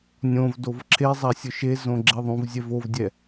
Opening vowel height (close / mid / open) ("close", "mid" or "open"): mid